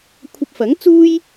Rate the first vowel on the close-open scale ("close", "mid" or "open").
open